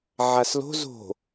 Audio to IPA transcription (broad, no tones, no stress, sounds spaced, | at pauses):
ʕ a s l o̤ z o̤